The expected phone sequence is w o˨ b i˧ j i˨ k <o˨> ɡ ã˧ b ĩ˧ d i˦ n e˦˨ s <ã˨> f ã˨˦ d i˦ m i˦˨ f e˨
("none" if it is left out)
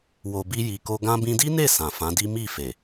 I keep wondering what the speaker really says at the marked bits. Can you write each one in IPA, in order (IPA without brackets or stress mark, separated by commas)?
o˧, ã˨